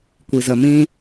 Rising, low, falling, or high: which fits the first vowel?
low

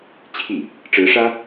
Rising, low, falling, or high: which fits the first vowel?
falling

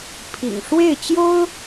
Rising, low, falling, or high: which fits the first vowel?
low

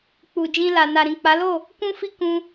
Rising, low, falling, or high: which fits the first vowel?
low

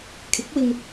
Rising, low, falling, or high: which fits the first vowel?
rising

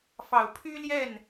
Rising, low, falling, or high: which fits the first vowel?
low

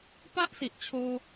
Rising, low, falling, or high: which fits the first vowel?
high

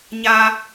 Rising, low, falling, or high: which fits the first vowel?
high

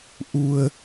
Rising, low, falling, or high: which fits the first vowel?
low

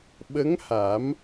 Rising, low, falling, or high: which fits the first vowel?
rising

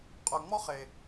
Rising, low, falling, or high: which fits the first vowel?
low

